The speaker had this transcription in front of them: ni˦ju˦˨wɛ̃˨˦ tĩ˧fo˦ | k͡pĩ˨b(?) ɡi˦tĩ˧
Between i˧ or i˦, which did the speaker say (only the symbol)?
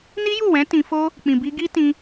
i˧